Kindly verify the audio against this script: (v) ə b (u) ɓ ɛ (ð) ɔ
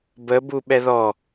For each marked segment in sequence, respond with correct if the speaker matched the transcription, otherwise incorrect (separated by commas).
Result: incorrect, correct, correct